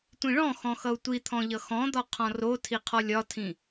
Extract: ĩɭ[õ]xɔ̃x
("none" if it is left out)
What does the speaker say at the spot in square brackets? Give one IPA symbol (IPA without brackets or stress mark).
ɔ̃